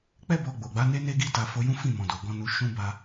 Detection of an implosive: absent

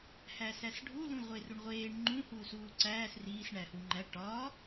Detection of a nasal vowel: present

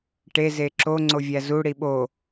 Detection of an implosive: present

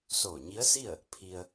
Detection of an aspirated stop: present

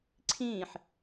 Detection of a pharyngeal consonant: present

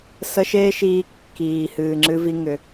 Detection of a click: present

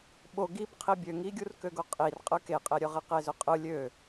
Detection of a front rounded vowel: present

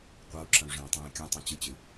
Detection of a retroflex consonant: present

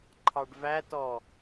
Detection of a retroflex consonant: present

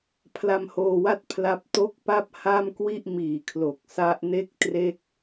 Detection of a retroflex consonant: absent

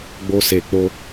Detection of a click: absent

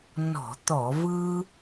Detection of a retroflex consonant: absent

